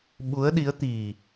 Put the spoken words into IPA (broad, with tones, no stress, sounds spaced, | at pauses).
ɓ u˨˦ ə̯ ɗ i˨˦ ə̯ t̪ i˨˩